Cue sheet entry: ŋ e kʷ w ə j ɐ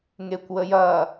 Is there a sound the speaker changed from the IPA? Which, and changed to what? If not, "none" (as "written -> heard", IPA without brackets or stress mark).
none